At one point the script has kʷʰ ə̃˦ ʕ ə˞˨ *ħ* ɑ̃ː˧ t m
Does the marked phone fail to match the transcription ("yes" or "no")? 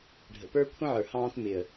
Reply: yes